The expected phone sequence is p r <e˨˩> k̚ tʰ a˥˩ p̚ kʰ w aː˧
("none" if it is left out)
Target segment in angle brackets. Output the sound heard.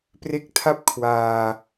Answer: e˦˥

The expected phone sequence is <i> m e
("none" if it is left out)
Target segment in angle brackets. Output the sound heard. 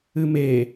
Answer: ɨ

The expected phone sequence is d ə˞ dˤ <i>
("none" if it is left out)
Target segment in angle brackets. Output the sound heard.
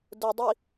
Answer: i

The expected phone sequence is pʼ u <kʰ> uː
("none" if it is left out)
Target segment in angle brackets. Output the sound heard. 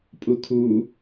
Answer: kʰ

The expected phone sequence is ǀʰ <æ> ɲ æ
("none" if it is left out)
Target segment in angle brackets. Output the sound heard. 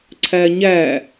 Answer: æ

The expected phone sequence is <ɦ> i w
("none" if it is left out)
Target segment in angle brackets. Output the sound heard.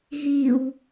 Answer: ɦ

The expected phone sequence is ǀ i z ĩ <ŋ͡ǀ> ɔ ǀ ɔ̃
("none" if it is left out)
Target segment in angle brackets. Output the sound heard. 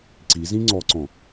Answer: ŋ͡ǀ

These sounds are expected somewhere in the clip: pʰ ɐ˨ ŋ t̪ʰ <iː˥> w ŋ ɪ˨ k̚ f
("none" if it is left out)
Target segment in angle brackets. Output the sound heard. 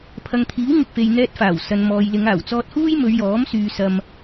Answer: iː˨˥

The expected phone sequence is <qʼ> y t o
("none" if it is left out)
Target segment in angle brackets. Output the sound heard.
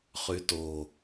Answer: χ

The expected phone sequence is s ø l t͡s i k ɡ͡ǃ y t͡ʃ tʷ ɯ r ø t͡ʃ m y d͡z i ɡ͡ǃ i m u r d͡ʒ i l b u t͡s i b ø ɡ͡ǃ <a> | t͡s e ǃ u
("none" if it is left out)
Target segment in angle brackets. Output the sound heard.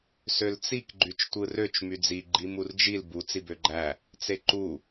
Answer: æ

